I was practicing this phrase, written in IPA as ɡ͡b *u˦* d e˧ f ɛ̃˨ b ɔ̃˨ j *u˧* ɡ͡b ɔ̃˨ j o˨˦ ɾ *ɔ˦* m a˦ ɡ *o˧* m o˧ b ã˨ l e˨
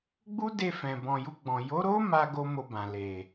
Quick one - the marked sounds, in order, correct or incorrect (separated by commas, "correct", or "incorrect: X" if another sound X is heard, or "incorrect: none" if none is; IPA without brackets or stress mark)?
correct, correct, incorrect: o˦, incorrect: o˦